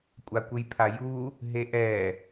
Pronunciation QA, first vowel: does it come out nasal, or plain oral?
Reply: oral